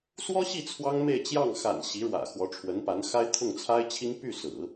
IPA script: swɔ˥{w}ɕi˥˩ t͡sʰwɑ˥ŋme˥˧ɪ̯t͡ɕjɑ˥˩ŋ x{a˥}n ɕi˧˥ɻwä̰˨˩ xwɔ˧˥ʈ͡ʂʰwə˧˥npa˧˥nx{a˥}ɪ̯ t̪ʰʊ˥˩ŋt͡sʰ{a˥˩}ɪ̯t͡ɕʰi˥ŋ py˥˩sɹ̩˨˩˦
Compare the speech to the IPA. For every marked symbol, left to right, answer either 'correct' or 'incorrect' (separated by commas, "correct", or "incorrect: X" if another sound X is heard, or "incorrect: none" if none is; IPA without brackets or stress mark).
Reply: incorrect: none, incorrect: a̰˨˩, correct, incorrect: a˥